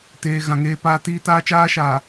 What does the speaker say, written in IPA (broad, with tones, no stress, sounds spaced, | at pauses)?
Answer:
t eː˨ ɣ ã˨ ŋ eː˦ p aː˦ t iː˦ t aː˦ t͡ʃ aː˦ ʃ aː˨